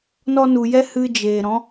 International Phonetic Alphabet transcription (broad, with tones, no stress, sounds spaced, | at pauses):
n ɔ˧ n u˨ j ɛ˦ h ɨ˦ d͡ʒ eː˨ ɾ ɔ̃˨˦